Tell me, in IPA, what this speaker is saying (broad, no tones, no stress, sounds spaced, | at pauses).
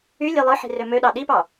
y lʲ e lˠ ɯ ħ i̤ r ø m ø ɗ ɑ ɗ i p ɑ